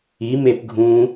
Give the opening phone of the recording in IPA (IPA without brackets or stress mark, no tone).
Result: i